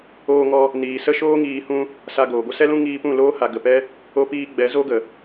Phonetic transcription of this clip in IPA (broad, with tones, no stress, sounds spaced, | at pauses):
oː˧ ŋ ɔ˧ | n iː˨ s ə˦ ʃ oː˦ ŋ iː˧ h ũ˦ | s a˧ ɡ oː˨ ɡʷ ə˦ s ɛ˦ l ũ˦ ŋ iː˧ p ũ˦˨ l oː˦ h a˨ ɡ ə˨ p ɛ˦ | o˧ p iː˧ ɡ͡b ɛ˨˦ z o˦ ɡ ə˨